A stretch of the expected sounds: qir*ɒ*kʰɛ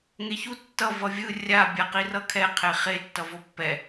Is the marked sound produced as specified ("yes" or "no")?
no